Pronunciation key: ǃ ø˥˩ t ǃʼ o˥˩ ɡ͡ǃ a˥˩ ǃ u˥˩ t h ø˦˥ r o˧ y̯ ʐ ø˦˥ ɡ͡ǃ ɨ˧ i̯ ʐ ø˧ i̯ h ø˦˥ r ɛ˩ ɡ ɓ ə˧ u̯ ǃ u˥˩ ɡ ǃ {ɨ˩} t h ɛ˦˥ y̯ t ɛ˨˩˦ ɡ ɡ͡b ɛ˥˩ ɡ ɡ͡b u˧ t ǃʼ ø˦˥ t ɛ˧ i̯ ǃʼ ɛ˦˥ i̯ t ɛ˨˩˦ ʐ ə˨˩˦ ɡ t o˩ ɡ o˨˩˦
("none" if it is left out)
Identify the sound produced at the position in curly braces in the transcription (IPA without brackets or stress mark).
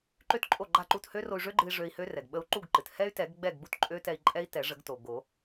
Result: ɨ˩